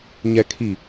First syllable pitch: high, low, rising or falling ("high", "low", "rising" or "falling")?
low